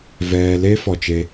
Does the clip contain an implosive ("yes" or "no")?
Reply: no